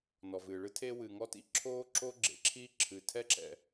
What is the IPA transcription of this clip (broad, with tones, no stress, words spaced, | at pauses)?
nɔ˩vɨː˩ɭɨ˥ tʰeː˥wɨ˩ŋɔ˥tḭ˥ ǁʰoː˥ǁo˥ɡ͡ǁḛ˩ ǁʰi˥ ǁʰɨ˩tʰɛ˥ǁɛ̰˩